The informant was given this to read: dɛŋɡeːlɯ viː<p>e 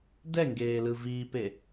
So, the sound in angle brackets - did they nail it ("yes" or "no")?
yes